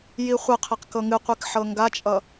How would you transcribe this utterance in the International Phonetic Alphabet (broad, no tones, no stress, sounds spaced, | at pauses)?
j i χʷ ə qʰ ɛ q k ɤ ŋ ɨ qʷ i k ħ ɤ ŋ ɡ a t͡ʃʼ ʌ